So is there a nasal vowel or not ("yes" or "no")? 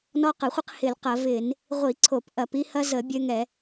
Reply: no